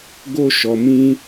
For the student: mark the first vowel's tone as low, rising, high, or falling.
high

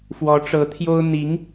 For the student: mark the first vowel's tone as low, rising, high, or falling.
rising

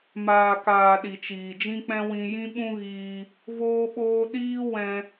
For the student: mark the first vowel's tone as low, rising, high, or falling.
low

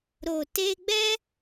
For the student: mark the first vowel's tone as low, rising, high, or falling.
low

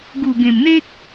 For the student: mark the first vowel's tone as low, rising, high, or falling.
low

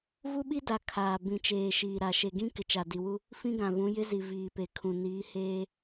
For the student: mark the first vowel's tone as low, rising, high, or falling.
high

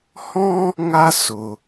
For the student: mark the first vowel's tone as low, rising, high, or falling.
high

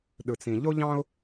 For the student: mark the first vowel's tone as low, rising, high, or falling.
low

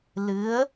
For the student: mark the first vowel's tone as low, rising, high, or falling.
rising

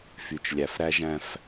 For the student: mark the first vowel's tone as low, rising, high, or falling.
low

